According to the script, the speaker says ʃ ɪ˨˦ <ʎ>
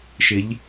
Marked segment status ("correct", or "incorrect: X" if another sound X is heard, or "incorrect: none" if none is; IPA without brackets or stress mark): correct